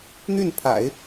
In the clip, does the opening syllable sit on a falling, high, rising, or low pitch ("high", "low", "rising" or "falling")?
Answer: falling